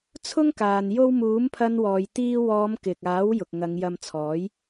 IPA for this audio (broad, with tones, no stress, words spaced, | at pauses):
t͡sʰʊ˥ŋ kaː˨n jo˥w muː˨˥mpʰɐ˧n wɔː˨jt̪iː˧wɔː˨˧m kɪ˨k̚aː˨˥w jʊ˨k̚ŋɐ˨˧ŋ jɐ˧mt͡sʰɔː˨˥j